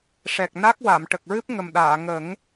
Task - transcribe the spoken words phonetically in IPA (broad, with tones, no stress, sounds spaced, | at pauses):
ʂ ɛ˨˩ k̚ n a˦˥ k̚ w a˨˩˨ m ʈ ə˨˩ k̚ ɹ ɨ˦˥ p̚ ŋ ə˨˩ m ɗ aː˨˩˨ ŋ ə˨˩˦ ŋ